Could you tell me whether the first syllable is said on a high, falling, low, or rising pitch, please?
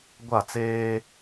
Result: falling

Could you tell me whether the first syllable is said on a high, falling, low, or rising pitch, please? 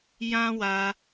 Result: high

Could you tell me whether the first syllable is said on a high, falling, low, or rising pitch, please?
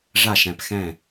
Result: falling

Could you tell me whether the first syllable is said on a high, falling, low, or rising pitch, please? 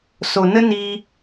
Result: low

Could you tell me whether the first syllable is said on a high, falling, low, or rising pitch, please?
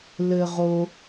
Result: low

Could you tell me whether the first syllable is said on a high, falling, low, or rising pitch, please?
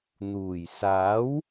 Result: low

